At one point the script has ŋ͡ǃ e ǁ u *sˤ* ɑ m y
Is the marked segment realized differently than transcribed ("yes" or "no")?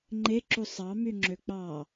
no